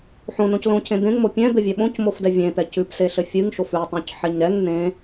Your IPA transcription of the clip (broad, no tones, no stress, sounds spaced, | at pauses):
ħ õ n õ c l õ cʰ ẽ d̪ ẽ ŋ m o pʲ ɛ̃ d̪ ɘ vʲ ɛ ɓ õ c m o f d ɛ vʲ ẽ t̪ ɛ c ʉ p s e ɬ ɘ fʲ ɨ ŋ ʃ o f ʉ tˤ õ c ħ ɛ ɲ ɾ ɛ ŋ n ẽ